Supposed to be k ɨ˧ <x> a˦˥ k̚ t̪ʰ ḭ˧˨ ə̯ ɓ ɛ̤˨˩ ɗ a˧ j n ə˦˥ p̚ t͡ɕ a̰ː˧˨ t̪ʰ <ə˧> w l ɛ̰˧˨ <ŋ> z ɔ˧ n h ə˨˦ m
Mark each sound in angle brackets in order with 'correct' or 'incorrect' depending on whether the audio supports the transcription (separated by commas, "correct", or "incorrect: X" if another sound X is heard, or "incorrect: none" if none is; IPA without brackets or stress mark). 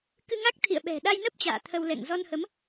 incorrect: ŋ, correct, correct